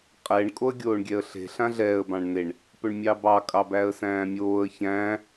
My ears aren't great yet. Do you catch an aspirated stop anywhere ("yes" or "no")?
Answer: no